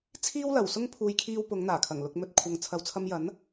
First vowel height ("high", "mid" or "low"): high